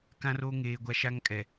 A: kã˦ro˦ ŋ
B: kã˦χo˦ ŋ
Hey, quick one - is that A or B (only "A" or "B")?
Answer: A